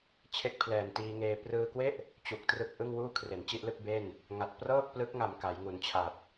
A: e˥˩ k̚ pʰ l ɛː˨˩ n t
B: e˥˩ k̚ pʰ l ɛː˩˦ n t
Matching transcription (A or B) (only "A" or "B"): A